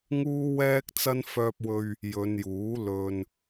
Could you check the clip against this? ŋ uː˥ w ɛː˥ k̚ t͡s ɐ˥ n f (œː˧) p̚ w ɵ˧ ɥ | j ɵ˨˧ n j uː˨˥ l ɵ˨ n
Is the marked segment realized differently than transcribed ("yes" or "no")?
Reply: no